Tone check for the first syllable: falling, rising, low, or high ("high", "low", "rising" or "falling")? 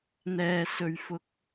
low